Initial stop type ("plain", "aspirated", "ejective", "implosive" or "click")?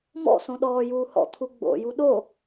implosive